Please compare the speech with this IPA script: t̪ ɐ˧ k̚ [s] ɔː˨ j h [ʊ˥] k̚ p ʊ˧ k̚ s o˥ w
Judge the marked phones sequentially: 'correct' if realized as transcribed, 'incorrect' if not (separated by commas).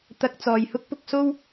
incorrect, correct